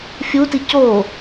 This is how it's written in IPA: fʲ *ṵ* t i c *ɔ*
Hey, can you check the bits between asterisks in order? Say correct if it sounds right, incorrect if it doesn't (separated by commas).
incorrect, incorrect